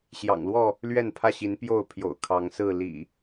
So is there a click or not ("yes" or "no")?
no